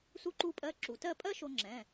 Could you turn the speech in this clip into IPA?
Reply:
su˧ǃu˧pʼɜ˧ ǁu˩tɜ˥˧ pʼɜ˥ʃo˧ŋ͡ǁɛ̃˩˧˩

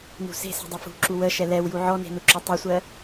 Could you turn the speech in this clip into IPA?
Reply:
nṳse̤se̤ dˤofṳǁu wəʃɛ lɛwju ʕɔne̤ nuǁotˤusʷɜ

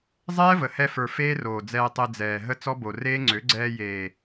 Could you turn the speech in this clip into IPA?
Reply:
zˤɛː˦və˨hɛ˧fə˞˨ feː˦roː˨d͡zɛː˧tˤe˧ d͡zɛː˨ ɦə˦t͡sɔ˦bo˨reː˦ ŋ͡ǀø˨˦ɡ͡ǀɛː˧ jeː˨

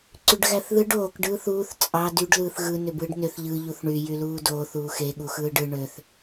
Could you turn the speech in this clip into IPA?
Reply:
ǀyɖɣæθðɯɖ oːk ɖɯːθuːθ t͡sʼɑ dyɖ lɯːθɣɯ nøbɯːɖnøθ ʎɯ ʎuθɳy jyluːdoːθ uːxe ɠuxɯːɖɯ ɳøθ

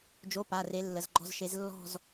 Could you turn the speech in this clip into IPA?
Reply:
d͡ʒo˧˥˧pa˩˧˩re˨˦ lːə˩˧˩zɡ͡ǃɔ̤˥˧zʃe˨˦z lːɔ̤˥˧z

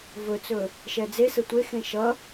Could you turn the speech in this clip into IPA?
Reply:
vɵt͡sɵ | ʃɛd͡zesə tʷexẽ ʃʌ

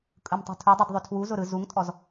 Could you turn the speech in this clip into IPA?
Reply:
kʼɯmtˤṳtʰudˤɯd ðˤʏtʰwuzʊ ɾɯ zuŋtʼɔz

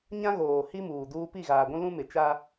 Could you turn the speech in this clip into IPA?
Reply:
ɲã˦ɣoː˨ hi˦muː˨duː˦ pi˦˨ɣaː˨ɡʷũ˦ lũ˦mɪ˨t͡ʃa˦

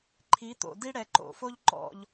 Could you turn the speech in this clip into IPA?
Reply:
ǃʰi˨˦t̪o̰˨ di˥ɽɛ˨˦ ǃo̰˨fo˥ʎ ǃɔ̰˨ʎ

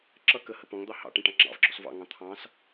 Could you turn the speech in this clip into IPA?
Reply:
ǁʌ kəhə pɔ̃ŋd̪ɑ hɑ̰ ʈɛ̃ʈɑ̃ŋ͡ǁɑ̰vɡ͡ǁɔs vɑ̰ŋɑ̃ t̪ʰɑ̃s

